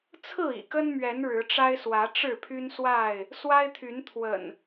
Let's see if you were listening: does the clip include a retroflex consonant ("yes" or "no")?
yes